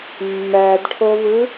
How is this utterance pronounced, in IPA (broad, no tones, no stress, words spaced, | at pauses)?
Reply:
mːædʈʰovɯ